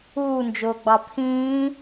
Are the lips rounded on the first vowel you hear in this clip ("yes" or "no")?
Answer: yes